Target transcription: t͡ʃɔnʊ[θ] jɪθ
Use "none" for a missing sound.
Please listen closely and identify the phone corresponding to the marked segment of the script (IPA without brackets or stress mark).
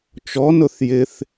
θ